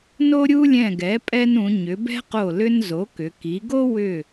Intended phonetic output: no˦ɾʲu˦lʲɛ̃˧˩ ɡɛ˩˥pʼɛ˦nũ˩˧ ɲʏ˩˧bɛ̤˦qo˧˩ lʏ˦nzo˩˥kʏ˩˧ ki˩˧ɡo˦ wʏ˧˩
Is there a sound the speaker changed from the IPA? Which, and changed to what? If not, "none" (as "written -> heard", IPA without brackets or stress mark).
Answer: none